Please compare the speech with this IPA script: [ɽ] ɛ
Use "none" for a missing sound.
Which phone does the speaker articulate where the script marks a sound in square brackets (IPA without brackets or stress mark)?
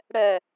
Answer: ɽ